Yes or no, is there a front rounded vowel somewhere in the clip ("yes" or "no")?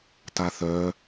yes